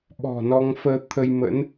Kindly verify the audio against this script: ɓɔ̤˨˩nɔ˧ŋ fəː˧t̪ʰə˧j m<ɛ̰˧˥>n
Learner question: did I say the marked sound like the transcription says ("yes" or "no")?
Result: no